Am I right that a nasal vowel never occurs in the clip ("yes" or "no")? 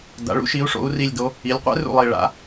yes